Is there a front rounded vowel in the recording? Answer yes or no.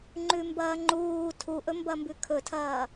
no